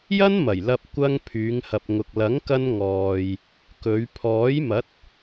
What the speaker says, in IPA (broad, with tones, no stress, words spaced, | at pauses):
jɐ˥nmɐ˨˩jlɐ˧p̚ kʷɐ˧ŋ pʰyː˨˧ŋhɐ˨p̚ŋʊ˨k̚ lɐ˨˥ŋkɐ˧n ŋɔː˨j | kɵ˨˧ɥ pʰɔː˨˥jmɐ˨˥t̚